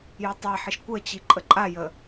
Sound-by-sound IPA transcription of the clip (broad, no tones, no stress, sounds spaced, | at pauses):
j ø tˤ a ħ i ʃ kʷ ə t͡ɕ i ǃʼ ə ǃʼ a j ə